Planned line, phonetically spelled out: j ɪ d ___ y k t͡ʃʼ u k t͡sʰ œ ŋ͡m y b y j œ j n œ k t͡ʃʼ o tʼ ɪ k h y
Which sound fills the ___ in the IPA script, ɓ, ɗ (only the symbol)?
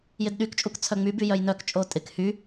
ɗ